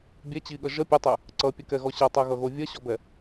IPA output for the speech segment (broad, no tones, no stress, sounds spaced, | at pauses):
bʲ ɛ t͡ɕ i ɠ ʌ ʒ ʌ pʲ ʌ tˤ ɛ | ǀ ʌ pʲ ɐ k ɛ ɣ ɔ ɕ ɐ tˤ ɛ ɣ ʌ ɣ o vʲ ɐ ɕ ɔ b ɛ